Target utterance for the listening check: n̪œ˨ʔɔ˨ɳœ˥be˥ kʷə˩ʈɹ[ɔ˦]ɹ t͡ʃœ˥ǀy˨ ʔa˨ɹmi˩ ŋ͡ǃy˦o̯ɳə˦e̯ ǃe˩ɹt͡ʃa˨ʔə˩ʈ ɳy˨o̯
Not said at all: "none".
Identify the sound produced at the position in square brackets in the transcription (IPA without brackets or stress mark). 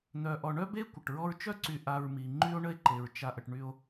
ɔ˦